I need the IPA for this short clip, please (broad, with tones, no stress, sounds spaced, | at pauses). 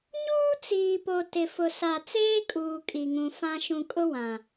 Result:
ɲ uː˦ t͡s iː˨ p o˨ t ɪ˨ f ʊ˨ s a˨ t͡s eː˦ kʼ uː˨ kʼ i˨ ŋ ũ˨ f ã˦ ʃ ũ˨ kʼ ʊ˦ w ã˨